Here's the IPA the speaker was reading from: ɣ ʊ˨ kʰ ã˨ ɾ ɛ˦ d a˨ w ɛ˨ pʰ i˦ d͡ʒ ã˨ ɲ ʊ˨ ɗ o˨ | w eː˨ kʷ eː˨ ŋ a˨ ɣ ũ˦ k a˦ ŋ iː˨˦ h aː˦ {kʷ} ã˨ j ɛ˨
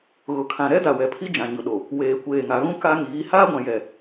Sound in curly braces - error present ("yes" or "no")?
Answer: yes